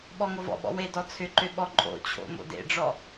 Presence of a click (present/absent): present